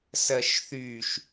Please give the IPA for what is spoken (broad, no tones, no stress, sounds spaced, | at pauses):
s ɜ ʃ θ y ʃ